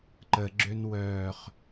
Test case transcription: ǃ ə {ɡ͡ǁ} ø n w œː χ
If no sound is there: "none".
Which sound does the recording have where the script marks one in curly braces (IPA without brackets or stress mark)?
ɡ͡ǁ